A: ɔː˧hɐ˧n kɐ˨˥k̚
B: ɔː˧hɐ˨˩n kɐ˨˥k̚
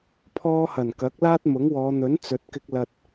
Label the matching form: B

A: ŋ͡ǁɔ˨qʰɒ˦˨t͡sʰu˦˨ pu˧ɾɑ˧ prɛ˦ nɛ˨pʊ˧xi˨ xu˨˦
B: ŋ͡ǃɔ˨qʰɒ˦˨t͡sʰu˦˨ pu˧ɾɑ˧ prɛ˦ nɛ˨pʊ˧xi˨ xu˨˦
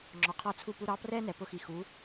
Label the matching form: A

